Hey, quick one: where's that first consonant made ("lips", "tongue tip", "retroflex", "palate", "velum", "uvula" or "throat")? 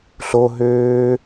tongue tip